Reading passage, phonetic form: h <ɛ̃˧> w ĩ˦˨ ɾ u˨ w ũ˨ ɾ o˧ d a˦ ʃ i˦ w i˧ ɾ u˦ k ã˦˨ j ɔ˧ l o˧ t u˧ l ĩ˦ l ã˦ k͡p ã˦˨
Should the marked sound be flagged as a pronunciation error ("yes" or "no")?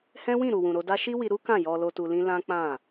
yes